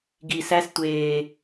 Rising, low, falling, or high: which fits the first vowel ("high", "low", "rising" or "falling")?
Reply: low